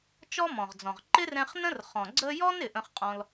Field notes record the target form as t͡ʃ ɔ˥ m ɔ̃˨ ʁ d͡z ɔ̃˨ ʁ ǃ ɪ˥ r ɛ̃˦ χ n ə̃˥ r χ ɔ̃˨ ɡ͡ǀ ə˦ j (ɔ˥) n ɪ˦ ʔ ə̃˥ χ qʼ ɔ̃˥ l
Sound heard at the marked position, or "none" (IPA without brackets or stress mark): ɔ˥